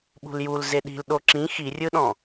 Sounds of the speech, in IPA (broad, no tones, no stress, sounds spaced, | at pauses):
ɓ ṳ l j u l z e ɗ i̤ l ɗ o ǁ ĩ x i rʲ ɯ ɗ ɔ̃